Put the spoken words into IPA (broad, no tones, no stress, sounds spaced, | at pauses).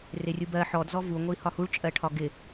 r ɪ rʲ u b ɜ ħ ɔ d z ɔ v u ŋʷ i h ɒ h u ɭ t͡ʃʼ ɜ ʈʰ ɒ ɡ ɪ